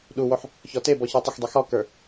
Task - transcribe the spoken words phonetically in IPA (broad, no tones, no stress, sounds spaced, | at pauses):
ɗ u w o ħ | ç ɔ t e b ɔ ç ə˞ tˤ ɪ x dˤ i x ɔ k ə˞